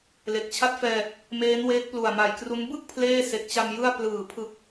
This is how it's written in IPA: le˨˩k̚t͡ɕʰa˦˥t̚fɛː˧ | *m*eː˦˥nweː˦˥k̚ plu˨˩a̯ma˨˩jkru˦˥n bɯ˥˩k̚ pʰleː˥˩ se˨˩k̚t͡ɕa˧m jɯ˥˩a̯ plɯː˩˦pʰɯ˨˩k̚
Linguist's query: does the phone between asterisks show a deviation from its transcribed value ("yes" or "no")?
no